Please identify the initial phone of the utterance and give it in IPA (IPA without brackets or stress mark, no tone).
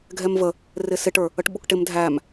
ɡʱ